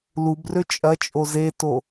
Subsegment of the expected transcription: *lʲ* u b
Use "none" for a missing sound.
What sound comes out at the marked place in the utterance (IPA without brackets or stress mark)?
l